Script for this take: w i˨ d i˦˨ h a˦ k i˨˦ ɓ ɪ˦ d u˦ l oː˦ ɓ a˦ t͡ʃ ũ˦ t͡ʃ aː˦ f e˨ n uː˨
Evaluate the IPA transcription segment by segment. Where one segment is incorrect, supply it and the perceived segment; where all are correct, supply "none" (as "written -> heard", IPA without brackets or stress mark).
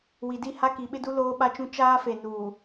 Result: none